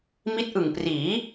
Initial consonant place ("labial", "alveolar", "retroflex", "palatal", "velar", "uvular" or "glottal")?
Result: labial